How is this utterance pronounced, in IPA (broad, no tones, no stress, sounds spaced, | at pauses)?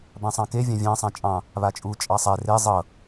b ã sˤ ɑ̃ k e vʲ ɑ̃ vʲ ɑ̃ sˤ ã t͡ʃʼ ɑ̃ | β a t͡ʃʼ u t͡ʃʼ ɑ sˤ ɛ r e zˤ ɤ